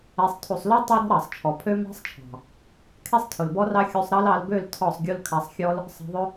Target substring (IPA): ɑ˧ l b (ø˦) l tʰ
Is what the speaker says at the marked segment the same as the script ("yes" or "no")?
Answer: no